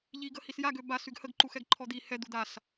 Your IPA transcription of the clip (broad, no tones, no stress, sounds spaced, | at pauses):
ʎ i ɡ ə h i s j a ɡ ø b a s y ɡ h ə ɡ ǃ u x ɛ ɡ ǃʰ ɔ d̪ i h ɛ d̪ u d̪ a s